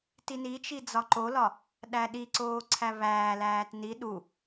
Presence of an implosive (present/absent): present